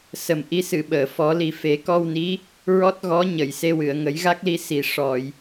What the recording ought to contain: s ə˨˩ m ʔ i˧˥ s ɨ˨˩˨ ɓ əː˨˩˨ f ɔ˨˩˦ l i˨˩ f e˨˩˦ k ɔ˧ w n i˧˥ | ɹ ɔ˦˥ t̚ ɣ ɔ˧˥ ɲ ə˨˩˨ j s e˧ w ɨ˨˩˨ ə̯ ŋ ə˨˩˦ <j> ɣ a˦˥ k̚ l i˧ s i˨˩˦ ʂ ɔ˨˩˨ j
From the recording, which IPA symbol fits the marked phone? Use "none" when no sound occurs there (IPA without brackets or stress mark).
j